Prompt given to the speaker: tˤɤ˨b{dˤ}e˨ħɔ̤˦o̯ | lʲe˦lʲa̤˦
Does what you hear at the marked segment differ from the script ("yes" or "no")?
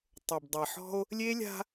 no